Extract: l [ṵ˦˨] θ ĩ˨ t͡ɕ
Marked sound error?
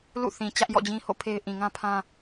no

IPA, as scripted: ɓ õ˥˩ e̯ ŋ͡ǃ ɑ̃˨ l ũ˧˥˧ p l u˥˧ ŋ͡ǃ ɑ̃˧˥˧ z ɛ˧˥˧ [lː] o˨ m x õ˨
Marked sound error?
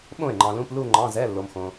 no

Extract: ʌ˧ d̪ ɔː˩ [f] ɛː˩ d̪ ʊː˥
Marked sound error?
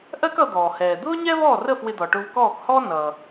yes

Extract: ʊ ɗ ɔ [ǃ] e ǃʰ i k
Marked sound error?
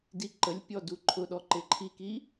no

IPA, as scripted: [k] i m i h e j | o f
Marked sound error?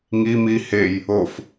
yes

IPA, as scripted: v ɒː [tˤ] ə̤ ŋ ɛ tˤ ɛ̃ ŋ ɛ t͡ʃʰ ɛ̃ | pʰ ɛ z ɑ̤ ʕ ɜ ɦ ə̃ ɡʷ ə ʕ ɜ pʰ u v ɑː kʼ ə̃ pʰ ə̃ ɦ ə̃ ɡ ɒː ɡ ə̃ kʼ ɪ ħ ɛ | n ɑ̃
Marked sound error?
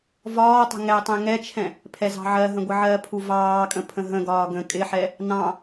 no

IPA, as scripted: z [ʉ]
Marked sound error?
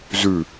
no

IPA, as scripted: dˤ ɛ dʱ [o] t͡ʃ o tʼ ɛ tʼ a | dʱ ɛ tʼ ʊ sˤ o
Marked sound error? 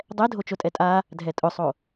no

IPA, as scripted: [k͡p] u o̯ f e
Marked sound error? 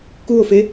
yes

